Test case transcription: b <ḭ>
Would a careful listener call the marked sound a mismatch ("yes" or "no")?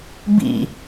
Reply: no